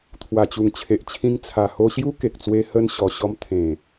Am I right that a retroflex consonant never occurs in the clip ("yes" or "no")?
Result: yes